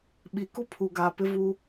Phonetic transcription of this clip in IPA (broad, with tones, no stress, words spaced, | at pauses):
ɓi˨ku˦pʰu˨ɡaː˨ pɪ˦vu˦